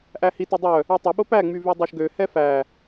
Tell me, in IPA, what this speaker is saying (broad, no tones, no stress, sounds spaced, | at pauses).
ʔ æ h i t o dˤ œ | ø tˤ ɵ ɓ o p æ ŋ͡m y v y dˤ o ʃ ɡ ø h ɛ f æ